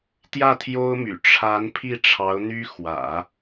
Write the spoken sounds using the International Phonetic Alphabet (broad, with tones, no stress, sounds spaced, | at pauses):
t̪ j ä˥˩ t̪ʰ j o˥ ʊ̯ m y̰˨˩ ʈ͡ʂʰ a˧˥ n pʰ i˥˩ ʈ͡ʂʰ ɑ˧˥ ʊ̯ n̪ y˥ x w ä̰˨˩˦